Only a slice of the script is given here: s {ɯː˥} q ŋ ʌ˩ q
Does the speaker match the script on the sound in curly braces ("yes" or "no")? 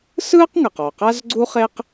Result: yes